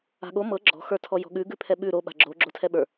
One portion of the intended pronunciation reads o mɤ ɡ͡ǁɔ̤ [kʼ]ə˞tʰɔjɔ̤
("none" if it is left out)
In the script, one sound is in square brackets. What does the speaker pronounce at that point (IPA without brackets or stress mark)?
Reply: x